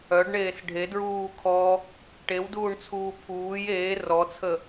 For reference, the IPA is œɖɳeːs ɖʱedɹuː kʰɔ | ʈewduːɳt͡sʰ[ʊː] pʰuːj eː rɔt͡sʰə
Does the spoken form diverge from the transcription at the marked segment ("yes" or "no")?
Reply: yes